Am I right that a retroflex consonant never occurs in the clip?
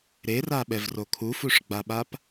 no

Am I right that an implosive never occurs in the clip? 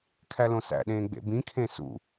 no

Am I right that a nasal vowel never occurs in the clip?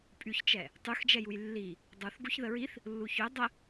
yes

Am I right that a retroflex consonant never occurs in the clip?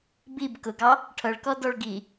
no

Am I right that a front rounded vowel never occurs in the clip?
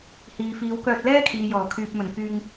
no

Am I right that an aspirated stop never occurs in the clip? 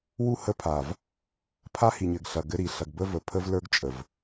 no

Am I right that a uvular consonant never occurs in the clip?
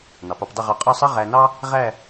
no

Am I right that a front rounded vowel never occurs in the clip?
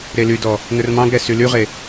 no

